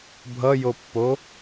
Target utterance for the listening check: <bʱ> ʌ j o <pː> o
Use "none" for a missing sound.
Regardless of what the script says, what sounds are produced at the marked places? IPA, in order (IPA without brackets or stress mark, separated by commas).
bʱ, pː